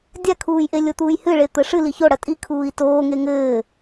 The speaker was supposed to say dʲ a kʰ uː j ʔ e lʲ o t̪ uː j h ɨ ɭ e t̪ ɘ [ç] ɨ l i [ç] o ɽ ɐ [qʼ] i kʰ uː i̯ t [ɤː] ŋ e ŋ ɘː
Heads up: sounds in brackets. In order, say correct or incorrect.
incorrect: ʂ, correct, incorrect: tʼ, incorrect: oː

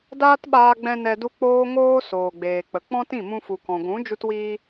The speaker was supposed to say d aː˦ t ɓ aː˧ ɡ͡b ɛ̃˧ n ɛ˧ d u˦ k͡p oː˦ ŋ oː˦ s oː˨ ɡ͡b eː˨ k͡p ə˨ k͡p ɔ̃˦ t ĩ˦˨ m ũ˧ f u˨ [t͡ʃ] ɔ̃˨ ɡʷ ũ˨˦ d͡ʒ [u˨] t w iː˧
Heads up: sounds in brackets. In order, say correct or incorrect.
incorrect: k, incorrect: u˧

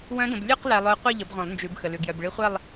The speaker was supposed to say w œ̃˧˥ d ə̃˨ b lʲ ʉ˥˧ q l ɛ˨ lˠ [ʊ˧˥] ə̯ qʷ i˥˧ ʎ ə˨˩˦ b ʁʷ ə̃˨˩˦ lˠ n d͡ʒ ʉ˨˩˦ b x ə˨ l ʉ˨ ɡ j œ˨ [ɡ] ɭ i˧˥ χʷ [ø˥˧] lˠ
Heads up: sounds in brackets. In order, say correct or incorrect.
correct, incorrect: b, incorrect: ɛ˥˧

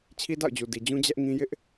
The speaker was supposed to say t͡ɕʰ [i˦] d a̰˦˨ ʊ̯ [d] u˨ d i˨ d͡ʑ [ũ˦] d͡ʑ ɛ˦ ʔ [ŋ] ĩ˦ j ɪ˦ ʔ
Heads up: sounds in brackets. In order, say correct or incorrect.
correct, incorrect: d͡ʑ, correct, correct

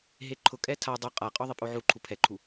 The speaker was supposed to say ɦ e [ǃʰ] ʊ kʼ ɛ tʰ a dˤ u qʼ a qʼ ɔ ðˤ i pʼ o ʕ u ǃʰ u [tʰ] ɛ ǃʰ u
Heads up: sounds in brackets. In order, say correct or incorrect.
correct, incorrect: pʰ

